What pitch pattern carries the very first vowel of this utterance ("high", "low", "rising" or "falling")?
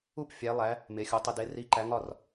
falling